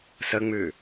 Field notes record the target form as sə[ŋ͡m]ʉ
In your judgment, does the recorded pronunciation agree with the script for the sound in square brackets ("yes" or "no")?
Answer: yes